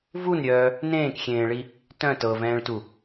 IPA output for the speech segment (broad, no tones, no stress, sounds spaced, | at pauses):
v u n ɾʲ œː | n ẽː k xʲ ẽː ɭ i | t œ̃ t ɤ v ɛ̃ː ɭ t u